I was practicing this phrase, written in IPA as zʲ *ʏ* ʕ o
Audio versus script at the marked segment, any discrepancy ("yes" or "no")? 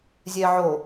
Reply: yes